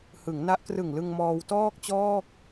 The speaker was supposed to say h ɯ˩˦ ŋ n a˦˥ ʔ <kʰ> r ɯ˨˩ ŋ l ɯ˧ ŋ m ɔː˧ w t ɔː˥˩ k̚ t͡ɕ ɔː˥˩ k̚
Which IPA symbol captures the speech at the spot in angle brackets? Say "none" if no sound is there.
k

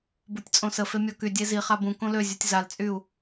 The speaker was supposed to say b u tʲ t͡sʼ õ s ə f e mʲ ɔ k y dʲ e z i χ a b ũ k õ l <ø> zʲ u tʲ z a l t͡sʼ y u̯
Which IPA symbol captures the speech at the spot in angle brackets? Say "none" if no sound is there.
ø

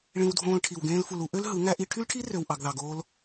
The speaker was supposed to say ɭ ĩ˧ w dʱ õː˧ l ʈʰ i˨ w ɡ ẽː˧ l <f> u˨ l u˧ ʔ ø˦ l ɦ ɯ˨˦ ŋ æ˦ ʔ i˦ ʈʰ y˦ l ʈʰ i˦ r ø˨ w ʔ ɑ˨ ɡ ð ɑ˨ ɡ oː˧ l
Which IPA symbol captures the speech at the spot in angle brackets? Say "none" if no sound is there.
f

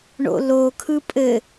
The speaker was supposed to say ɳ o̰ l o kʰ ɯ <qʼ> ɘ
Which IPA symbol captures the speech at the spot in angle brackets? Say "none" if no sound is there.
pʼ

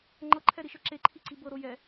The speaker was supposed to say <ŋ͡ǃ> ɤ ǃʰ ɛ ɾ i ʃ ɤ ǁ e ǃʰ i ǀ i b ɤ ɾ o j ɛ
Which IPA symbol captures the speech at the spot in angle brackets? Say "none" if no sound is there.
ŋ͡ǃ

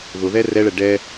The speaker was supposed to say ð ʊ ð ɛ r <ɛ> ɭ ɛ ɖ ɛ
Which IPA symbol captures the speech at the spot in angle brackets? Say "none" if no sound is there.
ɛ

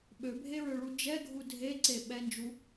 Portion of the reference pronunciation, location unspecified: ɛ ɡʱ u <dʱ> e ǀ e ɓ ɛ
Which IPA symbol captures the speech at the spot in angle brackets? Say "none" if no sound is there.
dʱ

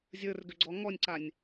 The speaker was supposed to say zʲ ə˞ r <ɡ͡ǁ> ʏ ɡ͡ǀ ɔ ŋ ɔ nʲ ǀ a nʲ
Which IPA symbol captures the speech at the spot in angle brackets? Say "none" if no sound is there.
ɡ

